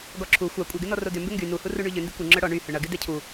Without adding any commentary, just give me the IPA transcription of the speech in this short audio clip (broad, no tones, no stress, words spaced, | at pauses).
ɡɔǁʰu xʷa kʷʼœɡɪnɔ rodʏ mbɪŋɡy nuhuru ɳyʎʏ ndɪkʷɪ ŋ͡ǁœɽɔ ɳy hʏɳɐɡɪ dɛcʰu